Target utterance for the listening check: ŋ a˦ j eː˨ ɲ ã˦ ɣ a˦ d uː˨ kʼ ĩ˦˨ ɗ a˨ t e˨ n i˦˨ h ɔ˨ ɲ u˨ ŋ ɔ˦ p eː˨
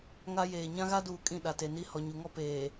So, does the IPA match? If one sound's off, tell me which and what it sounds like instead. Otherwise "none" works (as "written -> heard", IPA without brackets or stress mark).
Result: none